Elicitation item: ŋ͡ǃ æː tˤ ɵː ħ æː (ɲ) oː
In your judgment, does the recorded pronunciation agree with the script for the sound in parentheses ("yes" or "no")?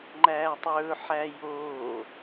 no